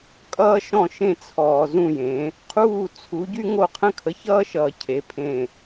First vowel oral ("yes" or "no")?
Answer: yes